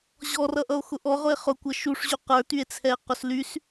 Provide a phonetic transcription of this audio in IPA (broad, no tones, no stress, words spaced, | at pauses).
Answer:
ʑɔrʌʔʌo̯ xʊʔɔʁʊe̯ χʊkʷʌ ʃuʂʑy qə˞tye̯t͡sʰɛe̯ qʊslys